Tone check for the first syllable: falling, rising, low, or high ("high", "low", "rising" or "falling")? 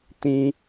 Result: high